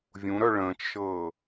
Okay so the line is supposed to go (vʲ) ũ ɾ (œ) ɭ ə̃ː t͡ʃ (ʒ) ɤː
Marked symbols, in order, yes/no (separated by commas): yes, yes, no